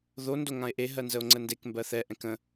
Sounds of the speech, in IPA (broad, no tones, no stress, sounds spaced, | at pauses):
ð o n d o ŋ ã e̯ ʔ e ɦ ɜ n z ə o̯ ŋ͡ǀ ə n d e k m b ɜ θ ɛ ʔ ɛ̃ k ə̃